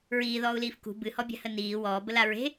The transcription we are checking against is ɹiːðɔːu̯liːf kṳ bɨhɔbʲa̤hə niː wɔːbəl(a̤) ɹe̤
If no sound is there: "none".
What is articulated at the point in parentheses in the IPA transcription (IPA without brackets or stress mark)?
a